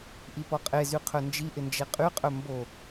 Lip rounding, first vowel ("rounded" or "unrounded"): unrounded